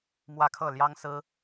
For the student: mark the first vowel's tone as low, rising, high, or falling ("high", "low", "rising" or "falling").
falling